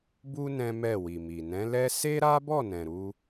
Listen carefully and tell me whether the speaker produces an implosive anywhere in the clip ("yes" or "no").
no